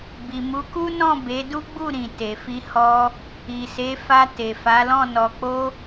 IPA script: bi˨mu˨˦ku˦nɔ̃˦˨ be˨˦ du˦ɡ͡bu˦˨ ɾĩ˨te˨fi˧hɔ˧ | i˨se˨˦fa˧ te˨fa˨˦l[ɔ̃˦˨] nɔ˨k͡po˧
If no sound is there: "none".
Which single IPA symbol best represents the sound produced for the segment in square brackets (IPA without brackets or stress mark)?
ɔ̃˦˨